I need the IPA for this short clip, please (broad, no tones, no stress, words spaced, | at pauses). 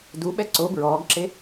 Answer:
duɓɛ ǀo bɹɔːɡǁe